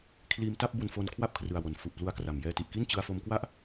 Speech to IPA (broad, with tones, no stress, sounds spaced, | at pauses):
kʰ l iː˧ m t a˥˩ p̚ b u˧ n f o˧ n kʰ w a˥˩ p̚ kʰ r ɯ˨˩ a̯ w o˩˦ n f u˨˩ ʔ p l u˧ a̯ k r a˨˩ m j ɛː˧ t i˨˩ ʔ k i˥˩ n t͡ɕ ɯ˧ a̯ f o˧ m k w a˥˩ ʔ